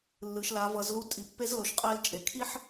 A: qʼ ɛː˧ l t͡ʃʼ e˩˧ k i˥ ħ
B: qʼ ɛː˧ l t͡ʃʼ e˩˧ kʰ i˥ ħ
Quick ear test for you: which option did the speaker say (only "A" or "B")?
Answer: B